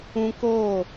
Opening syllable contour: high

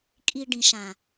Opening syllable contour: low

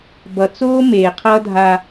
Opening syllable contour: low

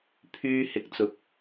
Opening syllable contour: high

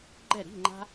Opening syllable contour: falling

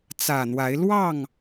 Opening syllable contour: low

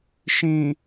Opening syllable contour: low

